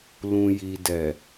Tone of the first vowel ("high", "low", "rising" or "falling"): low